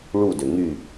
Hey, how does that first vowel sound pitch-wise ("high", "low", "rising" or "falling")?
falling